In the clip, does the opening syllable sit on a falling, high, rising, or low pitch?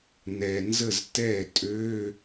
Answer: low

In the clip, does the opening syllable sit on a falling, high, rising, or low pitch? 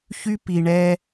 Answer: high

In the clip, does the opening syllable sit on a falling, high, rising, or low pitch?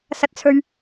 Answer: low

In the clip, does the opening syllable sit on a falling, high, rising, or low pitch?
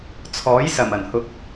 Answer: rising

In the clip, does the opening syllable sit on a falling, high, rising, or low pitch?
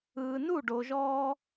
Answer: low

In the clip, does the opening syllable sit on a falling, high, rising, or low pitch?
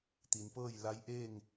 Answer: low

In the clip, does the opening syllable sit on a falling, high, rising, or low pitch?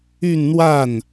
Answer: falling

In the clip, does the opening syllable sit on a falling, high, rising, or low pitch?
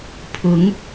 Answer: rising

